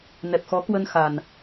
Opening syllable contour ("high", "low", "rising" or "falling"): low